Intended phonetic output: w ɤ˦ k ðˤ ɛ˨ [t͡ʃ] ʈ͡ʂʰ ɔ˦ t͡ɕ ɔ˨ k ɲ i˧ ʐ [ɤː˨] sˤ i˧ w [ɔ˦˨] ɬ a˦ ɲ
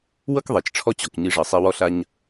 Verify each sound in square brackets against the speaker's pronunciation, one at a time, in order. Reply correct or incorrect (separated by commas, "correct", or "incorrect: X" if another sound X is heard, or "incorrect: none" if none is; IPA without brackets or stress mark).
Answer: correct, incorrect: ɤ˨, incorrect: ɔ˦